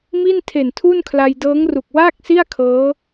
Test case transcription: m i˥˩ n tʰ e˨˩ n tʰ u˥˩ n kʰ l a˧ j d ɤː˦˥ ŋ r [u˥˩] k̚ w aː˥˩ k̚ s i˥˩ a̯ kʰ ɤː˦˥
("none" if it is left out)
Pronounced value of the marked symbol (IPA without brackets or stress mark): u˨˩